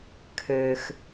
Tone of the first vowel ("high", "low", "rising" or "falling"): low